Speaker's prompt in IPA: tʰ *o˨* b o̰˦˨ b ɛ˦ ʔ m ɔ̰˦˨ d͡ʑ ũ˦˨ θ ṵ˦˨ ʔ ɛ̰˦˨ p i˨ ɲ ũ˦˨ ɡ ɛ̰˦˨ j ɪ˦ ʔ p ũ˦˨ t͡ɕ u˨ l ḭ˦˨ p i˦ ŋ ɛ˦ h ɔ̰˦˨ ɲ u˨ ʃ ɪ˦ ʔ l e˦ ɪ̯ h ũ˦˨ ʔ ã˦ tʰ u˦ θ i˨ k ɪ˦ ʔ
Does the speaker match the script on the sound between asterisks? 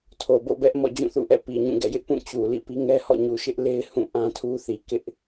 yes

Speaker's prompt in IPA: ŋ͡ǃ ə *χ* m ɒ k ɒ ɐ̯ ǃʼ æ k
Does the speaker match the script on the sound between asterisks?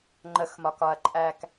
no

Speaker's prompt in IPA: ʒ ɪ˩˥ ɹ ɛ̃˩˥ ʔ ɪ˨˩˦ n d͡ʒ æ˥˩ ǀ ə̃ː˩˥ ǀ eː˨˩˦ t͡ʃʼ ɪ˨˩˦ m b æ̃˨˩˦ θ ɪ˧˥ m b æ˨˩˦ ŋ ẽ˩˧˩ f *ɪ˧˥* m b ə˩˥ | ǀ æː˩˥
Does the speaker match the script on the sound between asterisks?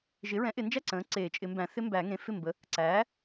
no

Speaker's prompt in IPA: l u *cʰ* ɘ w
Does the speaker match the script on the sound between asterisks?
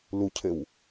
yes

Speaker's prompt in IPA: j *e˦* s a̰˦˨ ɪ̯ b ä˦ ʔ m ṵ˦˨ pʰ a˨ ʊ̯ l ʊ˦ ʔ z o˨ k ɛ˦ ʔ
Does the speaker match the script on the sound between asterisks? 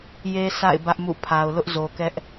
yes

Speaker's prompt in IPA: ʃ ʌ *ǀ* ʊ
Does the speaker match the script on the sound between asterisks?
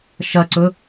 yes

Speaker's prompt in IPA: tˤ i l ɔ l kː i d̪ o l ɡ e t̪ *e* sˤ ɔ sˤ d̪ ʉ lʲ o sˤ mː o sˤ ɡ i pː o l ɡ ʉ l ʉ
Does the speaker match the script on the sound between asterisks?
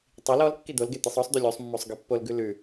yes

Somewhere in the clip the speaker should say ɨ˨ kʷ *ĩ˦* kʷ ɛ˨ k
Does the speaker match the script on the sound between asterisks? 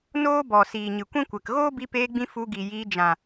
yes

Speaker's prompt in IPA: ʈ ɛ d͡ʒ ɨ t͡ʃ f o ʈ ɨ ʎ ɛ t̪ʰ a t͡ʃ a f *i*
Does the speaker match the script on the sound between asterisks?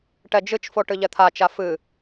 no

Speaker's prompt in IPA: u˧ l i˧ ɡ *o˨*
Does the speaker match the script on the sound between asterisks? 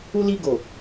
yes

